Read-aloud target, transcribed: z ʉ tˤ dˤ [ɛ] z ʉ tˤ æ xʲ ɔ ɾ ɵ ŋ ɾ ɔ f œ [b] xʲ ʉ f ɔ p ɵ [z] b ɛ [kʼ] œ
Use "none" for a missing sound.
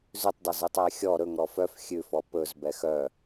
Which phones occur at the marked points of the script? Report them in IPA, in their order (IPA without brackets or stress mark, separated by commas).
ɛ, f, z, x